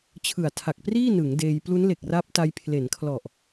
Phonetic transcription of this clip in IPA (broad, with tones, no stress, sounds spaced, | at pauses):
t͡ɕʰ ɯ˨˩ a̯ tʰ a˨˩ k̚ p r iː˥˩ n ɯ˩˦ ŋ d eː˧ j p l u˦˥ n l e˨˩ k̚ r a˦˥ p̚ t a˧ j pʰ l e˩˦ n kʰ l ɔ˨˩ ʔ